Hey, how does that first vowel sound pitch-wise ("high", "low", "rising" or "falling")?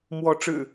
rising